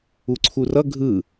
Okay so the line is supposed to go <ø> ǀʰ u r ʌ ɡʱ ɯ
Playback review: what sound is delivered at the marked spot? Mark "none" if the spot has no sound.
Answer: u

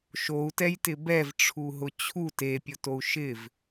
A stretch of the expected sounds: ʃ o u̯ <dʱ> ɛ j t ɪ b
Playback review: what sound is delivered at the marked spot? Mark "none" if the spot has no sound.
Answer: t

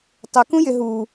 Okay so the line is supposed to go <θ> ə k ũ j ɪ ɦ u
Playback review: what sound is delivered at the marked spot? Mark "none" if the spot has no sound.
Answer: tˤ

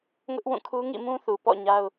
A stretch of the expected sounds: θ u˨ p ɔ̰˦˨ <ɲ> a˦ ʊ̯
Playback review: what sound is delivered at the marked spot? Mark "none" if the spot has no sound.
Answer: ɲ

